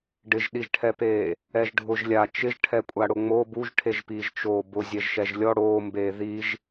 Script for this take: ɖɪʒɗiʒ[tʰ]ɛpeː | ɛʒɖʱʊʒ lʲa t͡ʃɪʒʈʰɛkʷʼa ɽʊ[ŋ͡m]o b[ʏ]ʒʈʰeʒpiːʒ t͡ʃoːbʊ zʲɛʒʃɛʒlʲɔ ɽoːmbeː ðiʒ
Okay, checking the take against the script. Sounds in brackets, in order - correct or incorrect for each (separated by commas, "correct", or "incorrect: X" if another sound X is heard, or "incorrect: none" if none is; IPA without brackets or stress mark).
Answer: incorrect: ʈʰ, correct, incorrect: u